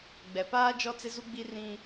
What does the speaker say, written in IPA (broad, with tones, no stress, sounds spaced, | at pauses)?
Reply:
ɡ͡b ɛ˨ p aː˦ d͡ʒ ɔ˦ t͡s ɪ˦ z u˦ ɡ͡b i˦ r ĩ˦